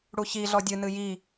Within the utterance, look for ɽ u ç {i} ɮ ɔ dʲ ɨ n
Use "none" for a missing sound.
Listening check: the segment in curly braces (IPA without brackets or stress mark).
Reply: i